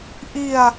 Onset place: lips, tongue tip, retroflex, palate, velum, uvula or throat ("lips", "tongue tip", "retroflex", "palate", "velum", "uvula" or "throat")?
throat